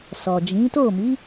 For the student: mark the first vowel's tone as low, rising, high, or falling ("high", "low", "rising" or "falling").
low